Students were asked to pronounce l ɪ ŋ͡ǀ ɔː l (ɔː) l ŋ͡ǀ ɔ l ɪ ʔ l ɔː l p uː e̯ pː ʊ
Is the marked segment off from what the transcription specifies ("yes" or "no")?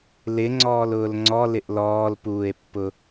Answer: yes